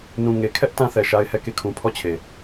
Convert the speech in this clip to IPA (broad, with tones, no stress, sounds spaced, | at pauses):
n ũ˨ ŋ e˨ kʰ ɛ˦ ʔ t ã˦ θ ɛ˨ ʃ a˦ ɪ̯ h ɛ˦˨ k e˦˨ kʰ ũ˨ pʰ ɔ˦˨ t͡ɕʰ e˨